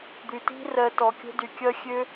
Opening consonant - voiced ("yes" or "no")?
yes